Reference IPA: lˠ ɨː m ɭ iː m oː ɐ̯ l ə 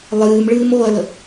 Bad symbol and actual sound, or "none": iː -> ɨː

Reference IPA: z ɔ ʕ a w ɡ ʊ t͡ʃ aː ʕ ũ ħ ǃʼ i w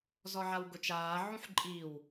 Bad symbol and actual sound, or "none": none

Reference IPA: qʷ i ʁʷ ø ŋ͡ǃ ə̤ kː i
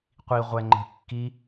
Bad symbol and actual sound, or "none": ø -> ɛ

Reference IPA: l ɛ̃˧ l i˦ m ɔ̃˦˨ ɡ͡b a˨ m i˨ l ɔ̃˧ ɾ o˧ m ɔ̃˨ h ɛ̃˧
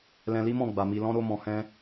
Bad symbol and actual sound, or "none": none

